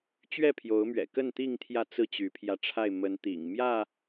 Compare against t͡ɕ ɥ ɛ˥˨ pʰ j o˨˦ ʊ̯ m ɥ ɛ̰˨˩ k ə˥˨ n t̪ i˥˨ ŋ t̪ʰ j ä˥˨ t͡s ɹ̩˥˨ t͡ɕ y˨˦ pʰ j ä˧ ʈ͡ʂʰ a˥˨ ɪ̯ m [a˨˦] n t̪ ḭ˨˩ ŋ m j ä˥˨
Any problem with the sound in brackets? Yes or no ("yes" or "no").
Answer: yes